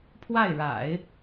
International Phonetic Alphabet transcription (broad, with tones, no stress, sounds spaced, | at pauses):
pʰ w a˥˩ ɪ̯ ɻ a̰˨˩˦ ɪ̯